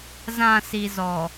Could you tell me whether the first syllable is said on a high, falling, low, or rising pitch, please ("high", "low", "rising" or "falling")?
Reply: low